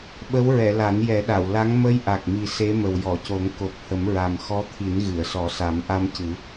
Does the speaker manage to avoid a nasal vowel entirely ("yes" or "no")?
yes